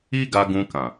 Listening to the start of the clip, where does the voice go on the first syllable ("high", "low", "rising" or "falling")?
high